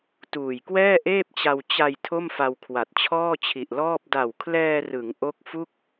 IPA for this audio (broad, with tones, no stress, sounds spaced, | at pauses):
t uː˨˩ j k w ɛː˥˩ ʔ eː˥˩ p̚ t͡ɕ a˧ w t͡ɕ a˧ j tʰ o˥˩ m f a˧ w kʰ w a˨˩ t̚ t͡ɕʰ ɔː˥˩ t͡ɕʰ i˨˩ ʔ l ɔː˥˩ p̚ d a˨˩ w kʰ l ɛː˧ r ɯ˩˦ ŋ ʔ o˦˥ k̚ f u˥˩ k̚